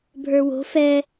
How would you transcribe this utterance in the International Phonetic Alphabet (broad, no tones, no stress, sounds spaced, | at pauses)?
bʱ ə˞ w o̤ f ɛ